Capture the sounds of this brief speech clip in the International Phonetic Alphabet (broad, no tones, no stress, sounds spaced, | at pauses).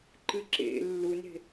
ǃ ɨ ǁ ḛ lː u n e̤